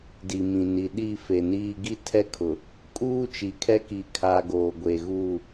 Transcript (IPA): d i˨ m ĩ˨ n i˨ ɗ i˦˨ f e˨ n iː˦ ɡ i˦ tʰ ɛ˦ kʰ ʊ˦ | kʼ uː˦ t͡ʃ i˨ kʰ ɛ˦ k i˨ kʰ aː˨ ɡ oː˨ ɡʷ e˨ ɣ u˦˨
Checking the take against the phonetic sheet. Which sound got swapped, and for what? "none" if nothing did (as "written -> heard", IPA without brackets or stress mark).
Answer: ʊ˦ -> ʊ˨